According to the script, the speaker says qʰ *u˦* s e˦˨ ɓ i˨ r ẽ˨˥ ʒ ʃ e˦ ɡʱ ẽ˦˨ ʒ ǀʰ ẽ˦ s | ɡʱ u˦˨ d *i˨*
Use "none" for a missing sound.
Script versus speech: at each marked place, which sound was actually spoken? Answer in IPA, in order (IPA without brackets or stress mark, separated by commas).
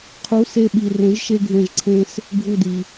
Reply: u˨˥, i˨